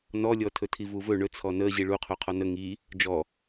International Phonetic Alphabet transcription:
nɔlʲɔ tʰɵtʰivuvɵ ɳɵt͡sʰɔ nə ʑiɭuqʰo qʰɔnə ŋi | d͡ʒɔ

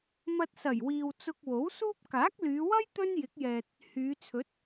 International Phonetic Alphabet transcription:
mɐ˧t̚sɐ˨˩jwiː˨w t͡sʊ˧k̚wo˨˥wsuː˥p̚ kaː˨˥k̚lyː˨˧wɐ˥j t̪ɵ˥njɪ˨˥k̚jɛː˨t̚ | hyː˨˧t͡sʰɵ˨˥t̚

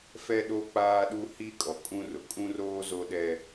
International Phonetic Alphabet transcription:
fɛ˦ɗo˦ k͡paː˦ɗu˦hi˦kʼɔ˨ kʼũ˦rʊ˨ kʼũ˦roː˦ zo˦ɗɛ˦

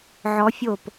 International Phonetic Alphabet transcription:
ʕɔ˦˥fʲo˥˧p

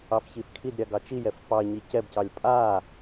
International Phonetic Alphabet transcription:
ɑfçifkʰidɾʲa ɡɑt͡ʃijɛf pɑɲi cɛbcɑlʲ pʼa

